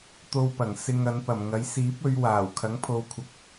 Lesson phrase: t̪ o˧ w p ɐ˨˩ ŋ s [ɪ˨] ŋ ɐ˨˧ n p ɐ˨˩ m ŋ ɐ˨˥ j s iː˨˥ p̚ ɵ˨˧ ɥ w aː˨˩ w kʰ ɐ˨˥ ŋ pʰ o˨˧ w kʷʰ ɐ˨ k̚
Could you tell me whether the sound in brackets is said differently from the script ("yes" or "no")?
no